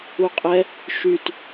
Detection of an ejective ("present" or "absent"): present